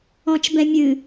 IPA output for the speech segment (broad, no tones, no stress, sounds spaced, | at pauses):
ɔ̃ t͡ʃ b ɛ̃ mʲ ɨ